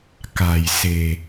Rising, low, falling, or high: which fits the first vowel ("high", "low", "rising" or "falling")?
low